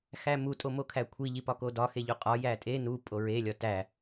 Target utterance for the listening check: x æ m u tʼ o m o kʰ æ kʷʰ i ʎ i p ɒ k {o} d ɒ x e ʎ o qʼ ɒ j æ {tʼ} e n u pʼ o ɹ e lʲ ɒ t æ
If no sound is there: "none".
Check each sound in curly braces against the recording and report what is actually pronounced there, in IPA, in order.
o, tʼ

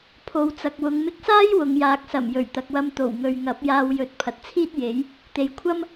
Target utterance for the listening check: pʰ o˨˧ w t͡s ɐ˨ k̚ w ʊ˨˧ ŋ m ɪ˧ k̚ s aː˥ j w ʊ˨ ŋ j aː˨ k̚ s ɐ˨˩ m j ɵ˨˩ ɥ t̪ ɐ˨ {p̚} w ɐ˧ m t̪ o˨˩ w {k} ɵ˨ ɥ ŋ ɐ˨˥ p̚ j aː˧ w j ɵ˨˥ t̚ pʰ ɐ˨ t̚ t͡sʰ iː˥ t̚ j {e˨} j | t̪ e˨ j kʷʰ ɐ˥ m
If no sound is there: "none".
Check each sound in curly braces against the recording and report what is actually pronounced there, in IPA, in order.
k̚, ŋ, e˨˥

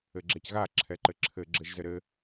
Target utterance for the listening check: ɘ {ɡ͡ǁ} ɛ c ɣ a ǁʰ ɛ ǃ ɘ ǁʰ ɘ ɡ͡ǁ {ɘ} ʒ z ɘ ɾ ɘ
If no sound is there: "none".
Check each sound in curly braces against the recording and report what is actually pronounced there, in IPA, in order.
ɡ͡ǁ, ɘ

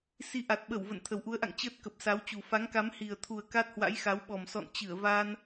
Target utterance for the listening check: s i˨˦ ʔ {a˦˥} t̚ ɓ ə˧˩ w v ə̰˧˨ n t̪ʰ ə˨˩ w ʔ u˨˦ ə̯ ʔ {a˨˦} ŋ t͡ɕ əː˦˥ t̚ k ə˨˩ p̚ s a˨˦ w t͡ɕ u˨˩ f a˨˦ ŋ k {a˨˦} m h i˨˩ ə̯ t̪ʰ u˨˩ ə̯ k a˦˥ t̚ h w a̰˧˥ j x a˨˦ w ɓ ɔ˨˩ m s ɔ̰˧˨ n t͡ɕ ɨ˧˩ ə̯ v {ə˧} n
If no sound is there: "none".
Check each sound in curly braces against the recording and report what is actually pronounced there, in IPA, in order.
a˨˩, a̰˧˨, a˨˦, a˧

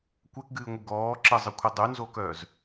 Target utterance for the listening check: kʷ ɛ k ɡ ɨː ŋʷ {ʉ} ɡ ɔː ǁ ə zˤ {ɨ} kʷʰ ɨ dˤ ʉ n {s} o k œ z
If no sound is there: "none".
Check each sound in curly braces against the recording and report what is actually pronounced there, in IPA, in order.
ɨ, ɨ, z

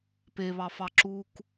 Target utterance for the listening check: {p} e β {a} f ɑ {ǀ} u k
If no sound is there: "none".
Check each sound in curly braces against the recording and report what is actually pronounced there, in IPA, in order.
p, ɑ, ǁ

